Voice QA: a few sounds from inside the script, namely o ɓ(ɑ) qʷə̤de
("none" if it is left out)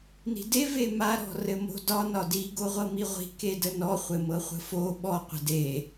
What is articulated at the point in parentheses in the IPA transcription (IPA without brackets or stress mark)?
ɔ